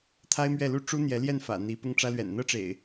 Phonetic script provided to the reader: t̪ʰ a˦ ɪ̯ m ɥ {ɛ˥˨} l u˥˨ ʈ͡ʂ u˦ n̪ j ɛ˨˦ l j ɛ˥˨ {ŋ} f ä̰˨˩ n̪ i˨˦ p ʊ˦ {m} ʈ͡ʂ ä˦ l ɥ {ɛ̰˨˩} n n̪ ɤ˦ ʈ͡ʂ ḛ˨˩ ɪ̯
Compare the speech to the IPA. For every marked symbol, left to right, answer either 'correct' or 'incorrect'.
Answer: correct, incorrect: n, incorrect: ŋ, correct

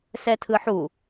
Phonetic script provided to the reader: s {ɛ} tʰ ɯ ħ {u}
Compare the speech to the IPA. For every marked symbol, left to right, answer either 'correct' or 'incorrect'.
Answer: correct, correct

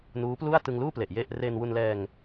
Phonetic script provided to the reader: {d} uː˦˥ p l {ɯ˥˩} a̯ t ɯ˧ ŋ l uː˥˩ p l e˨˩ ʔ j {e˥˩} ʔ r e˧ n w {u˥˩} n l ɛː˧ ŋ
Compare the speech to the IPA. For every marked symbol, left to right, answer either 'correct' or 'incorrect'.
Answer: incorrect: n, incorrect: u˥˩, correct, incorrect: u˧

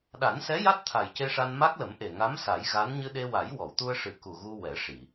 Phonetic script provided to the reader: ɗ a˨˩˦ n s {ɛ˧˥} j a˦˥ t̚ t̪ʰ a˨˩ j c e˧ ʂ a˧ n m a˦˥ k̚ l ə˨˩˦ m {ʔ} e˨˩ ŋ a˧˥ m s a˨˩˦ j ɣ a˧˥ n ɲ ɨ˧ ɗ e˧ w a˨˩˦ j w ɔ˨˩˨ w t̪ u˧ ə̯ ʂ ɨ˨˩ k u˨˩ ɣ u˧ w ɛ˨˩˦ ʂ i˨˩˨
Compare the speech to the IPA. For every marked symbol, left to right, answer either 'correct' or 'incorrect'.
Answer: correct, correct

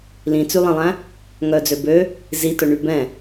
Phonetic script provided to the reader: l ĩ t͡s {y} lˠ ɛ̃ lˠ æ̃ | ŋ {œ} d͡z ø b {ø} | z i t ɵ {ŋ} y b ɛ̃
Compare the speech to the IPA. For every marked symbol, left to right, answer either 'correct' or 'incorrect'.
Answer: correct, correct, correct, incorrect: ɳ

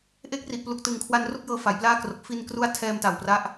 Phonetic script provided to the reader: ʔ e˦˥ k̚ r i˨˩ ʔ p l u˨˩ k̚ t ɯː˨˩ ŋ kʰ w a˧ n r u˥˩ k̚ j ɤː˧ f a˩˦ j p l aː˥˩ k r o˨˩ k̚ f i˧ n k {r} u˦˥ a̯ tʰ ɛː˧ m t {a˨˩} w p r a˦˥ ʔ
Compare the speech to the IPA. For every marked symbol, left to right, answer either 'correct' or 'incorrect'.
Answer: correct, correct

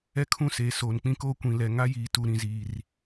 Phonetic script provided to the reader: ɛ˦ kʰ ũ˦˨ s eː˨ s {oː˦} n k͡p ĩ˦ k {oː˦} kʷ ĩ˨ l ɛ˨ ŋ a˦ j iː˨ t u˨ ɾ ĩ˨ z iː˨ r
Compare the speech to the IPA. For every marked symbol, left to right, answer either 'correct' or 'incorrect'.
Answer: incorrect: oː˨, correct

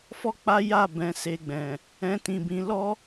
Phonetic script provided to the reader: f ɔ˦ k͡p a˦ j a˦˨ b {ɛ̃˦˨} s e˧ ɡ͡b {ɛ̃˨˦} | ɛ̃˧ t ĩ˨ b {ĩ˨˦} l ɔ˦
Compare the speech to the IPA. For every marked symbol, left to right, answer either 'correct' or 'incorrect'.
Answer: incorrect: ɛ̃˧, incorrect: ɛ̃˨, correct

